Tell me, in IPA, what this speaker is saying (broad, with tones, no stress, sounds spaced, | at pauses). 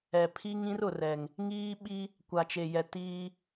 ɛ˨ pʰ i˦ ŋ ĩ˦ r ʊ˨ r ɛ˨ ŋ | ŋ iː˦ ɓ i˦ | kʷ a˨ t͡ʃ e˨ j ɛ˨ t iː˦